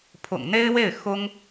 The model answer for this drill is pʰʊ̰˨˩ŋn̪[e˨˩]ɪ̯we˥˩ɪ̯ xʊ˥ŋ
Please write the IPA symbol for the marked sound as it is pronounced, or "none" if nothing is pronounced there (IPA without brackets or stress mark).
e˥